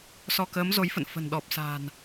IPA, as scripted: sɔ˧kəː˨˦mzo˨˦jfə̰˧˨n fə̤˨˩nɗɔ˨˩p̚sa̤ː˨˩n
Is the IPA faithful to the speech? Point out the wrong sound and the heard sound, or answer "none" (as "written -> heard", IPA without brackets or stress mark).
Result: none